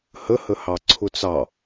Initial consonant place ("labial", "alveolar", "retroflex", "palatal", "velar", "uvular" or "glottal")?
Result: glottal